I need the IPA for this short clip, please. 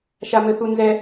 ʃ a m ɘ θ u n z ɛ

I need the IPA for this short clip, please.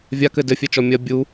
vʲ a k ɘ d ɘ fʲ ɛ t͡ʃ ɔ mʲ ɐ bʲ u

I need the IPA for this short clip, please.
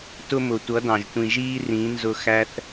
t ʊ˧ m ʊ˨ tʷ ʌ˨˦ d ɑ̃˨ ʒ tʷ ĩ˨ ʒ iː˧ r ĩ˨˦ n z ʊ˧ x æ˦ θ

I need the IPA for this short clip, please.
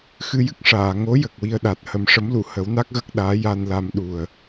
x ɨ˧ j ɨ˦˥ k̚ ʂ aː˨˩˨ ŋ o˧˥ j ə˨˩ k̚ w i˧ ə̯ ɗ a˨˩ t̚ h ə˨˩˦ m ʂ ə˧˥ m l u˨˩˨ h ə˨˩˦ w n a˦˥ k̚ ɣ ə˦˥ k̚ ɗ aː˧˥ j a˧ n l a˧ m ɗ u˨˩ ə̯

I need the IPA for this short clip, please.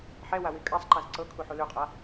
ħ ɛ w a w i kʼ a sˤ ǃ a z ǀ ɤ kʰ u ħ u l ʉ qʼ a

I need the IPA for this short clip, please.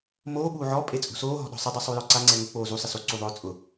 m oː ɓ uː ʕ ɔ pʼ e t͡sʼ ṳ s oː ɦ ɔ̤ ɗ ɔ̤ sˤ ɪ dˤ o sˤ u j ɔ ǀ a ŋ͡ǀ ɛ ŋ ʊ k͡p oː z u sˤ ɪ s o ǀ u ðˤ ʊː t͡sʼ ʊ

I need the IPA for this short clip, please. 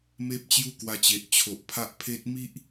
m e˦ p̚ t͡ɕ j u˦ k w a˧ t͡ɕ e˨ ʔ t͡ɕʰ o˨ ʔ pʰ a˦ ʔ pʰ e˦ t̚ m i˦ ʔ

